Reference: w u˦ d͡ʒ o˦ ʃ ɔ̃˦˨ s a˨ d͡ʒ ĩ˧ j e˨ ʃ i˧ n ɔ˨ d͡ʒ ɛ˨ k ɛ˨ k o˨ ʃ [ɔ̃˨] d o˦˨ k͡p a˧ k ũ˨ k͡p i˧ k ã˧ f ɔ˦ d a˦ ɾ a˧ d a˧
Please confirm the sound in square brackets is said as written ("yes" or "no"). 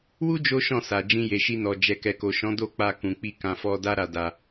no